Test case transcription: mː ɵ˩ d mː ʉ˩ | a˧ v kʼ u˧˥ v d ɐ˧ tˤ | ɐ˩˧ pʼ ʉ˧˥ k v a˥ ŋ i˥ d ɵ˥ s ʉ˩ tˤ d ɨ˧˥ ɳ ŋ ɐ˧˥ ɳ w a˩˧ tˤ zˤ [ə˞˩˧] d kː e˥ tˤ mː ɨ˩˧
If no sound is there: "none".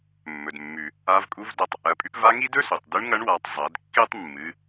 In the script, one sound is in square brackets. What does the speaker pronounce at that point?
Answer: ɐ˩˧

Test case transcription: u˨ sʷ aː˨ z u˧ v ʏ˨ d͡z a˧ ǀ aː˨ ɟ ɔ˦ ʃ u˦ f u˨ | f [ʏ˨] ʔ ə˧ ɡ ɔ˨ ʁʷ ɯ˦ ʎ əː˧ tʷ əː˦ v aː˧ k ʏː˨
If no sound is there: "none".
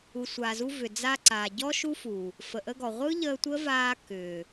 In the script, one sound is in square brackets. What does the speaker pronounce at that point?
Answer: ə˨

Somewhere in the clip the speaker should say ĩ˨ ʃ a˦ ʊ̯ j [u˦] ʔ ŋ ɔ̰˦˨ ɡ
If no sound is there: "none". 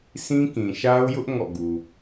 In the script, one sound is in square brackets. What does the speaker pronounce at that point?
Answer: ʊ˦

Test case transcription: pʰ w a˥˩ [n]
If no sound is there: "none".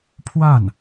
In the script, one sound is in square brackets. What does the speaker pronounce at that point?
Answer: n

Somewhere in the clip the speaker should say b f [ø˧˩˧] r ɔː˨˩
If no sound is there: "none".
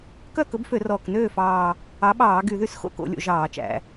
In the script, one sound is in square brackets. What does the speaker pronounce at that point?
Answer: ø˧˩˧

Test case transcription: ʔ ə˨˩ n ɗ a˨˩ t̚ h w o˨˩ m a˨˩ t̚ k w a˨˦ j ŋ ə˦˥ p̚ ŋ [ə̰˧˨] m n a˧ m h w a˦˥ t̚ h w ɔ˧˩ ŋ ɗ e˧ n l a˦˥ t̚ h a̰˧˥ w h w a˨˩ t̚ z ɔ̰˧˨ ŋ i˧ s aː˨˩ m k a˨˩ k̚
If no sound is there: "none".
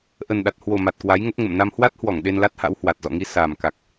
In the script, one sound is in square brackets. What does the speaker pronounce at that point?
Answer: ə̰˧˨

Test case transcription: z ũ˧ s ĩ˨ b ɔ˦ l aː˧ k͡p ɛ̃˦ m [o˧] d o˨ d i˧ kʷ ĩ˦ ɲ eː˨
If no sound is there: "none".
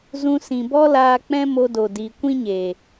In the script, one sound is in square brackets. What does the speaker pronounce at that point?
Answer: o˧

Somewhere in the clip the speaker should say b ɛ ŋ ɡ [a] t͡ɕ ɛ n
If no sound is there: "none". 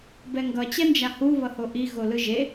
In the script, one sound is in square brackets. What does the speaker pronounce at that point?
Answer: ʌ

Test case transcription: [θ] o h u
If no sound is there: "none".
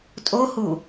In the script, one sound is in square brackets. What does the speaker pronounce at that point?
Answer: tʼ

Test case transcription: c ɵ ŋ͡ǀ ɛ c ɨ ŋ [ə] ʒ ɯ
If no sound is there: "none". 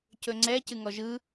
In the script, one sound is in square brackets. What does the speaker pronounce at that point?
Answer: ɔ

